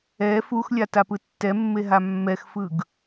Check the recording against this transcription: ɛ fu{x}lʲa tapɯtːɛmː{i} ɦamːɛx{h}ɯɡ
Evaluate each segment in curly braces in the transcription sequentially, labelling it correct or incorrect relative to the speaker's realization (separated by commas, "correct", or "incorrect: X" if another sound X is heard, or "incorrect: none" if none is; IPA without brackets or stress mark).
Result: correct, incorrect: e, incorrect: f